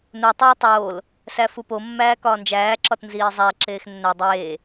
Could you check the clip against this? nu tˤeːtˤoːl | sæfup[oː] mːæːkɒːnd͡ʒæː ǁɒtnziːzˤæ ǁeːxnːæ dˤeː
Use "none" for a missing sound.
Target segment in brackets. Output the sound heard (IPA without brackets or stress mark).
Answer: o